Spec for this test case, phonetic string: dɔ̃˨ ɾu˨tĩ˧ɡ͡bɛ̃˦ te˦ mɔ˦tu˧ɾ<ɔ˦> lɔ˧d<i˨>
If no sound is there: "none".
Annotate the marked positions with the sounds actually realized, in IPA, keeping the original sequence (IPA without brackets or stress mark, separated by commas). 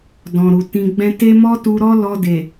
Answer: ɔ˦, e˨